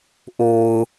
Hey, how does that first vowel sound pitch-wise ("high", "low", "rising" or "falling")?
low